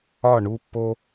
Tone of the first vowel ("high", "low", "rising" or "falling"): falling